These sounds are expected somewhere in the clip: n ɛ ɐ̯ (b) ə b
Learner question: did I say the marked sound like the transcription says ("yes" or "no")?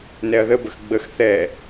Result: no